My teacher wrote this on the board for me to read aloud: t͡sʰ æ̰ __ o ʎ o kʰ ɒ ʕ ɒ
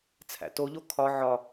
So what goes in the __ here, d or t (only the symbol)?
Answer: t